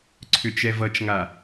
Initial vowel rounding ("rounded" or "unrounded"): rounded